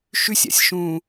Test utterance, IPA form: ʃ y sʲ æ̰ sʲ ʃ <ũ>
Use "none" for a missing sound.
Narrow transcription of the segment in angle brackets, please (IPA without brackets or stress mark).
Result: ũ